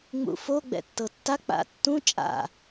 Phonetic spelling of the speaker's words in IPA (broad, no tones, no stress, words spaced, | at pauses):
ŋ͡mṵfo ɡ͡bɛ̰tːɤtːa k͡pa̰tːũ t͡ʃʼa̰